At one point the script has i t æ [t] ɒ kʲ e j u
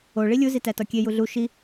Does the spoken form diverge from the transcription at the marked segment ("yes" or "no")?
no